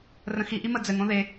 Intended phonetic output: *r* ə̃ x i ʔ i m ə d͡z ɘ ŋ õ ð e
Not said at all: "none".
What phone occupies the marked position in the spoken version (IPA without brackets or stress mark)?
r